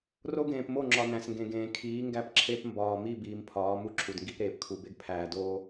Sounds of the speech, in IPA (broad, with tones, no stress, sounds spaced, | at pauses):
r o˦ ɡ ẽː˨ p m o˦˨ ŋ͡ǁ ɒ˨ n æ̃˨ s ŋ ɡ ẽ˨ ɡ ẽː˨ kʰ iː˨˦ ŋ ɡ æ˦ p ǁʰ e˦ p m b ɒː˨ m i˦˨ b iː˨ m pʰ ɒː˨˦ m u˦ ǁʰ u˨ d ŋ ɡ i˦ p ɾ eː˨ p kʰ u˨ b e˦ ɡ pʰ æː˨ d oː˦